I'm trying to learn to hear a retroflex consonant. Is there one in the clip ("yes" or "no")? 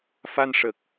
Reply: yes